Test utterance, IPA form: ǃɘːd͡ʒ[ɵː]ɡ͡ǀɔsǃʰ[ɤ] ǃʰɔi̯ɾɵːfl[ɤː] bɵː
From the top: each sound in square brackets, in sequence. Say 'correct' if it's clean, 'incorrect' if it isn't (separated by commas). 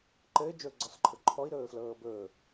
correct, correct, correct